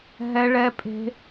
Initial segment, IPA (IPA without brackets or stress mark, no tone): ɦ